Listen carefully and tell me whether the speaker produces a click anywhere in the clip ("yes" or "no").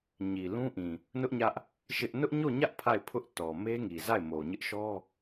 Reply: no